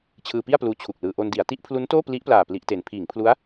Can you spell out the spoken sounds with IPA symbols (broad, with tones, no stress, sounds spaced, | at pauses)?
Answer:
t͡ɕʰ ɯː˧ p i˥˩ a̯ p l uː˧ t͡ɕʰ u˨˩ k̚ l ɯː˧ ʔ o˧ n d i˩˦ a̯ t i˦˥ ʔ pʰ l u˦˥ n t oː˥˩ p l i˦˥ ʔ p l aː˨˩ p l i˦˥ ʔ t e˧ n pʰ iː˩˦ ŋ pʰ l u˦˥ a̯